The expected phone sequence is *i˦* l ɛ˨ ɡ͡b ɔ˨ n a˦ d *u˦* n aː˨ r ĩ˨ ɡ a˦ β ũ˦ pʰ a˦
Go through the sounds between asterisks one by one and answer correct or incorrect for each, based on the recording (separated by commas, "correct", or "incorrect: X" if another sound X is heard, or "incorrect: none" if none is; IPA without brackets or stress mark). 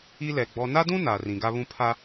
correct, incorrect: ũ˦